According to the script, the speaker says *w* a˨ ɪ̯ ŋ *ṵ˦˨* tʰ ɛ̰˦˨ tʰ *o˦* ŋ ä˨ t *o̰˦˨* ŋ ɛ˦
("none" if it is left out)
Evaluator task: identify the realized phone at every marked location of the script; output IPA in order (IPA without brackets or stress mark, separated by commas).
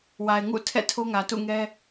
w, ṵ˦˨, o˦, ṵ˦˨